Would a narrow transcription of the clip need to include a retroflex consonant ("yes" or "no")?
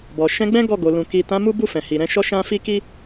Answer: no